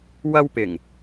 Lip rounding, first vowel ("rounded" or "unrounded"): unrounded